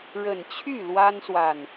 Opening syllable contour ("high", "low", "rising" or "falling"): low